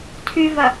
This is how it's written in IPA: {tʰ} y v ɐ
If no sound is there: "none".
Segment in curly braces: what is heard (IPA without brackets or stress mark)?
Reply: tʰ